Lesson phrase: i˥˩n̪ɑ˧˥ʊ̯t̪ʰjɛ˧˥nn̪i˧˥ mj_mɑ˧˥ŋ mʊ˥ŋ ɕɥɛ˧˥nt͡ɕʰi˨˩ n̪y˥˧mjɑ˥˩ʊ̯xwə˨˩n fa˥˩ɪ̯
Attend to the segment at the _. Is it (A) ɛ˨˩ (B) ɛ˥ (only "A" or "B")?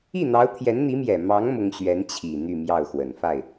A